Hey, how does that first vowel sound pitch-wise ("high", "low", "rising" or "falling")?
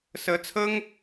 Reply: rising